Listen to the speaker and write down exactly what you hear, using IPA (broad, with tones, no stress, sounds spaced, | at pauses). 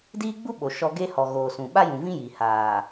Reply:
d iː˦ ɡ͡b u˦ ɓ o˨ ʃ ɔ˦ ɡ e˦ h ɔ˨ ɣ oː˨ s ũ˨ ɓ a˦ j ũ˨ v ĩ˦ j i˨ h aː˨